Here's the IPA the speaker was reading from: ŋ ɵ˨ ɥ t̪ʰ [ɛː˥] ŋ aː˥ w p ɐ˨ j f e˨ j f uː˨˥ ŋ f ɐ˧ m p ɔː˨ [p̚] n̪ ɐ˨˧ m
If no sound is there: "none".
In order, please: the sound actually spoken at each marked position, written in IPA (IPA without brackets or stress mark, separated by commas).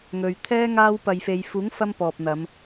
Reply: ɛː˥, p̚